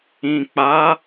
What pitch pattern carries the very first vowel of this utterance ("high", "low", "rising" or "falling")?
low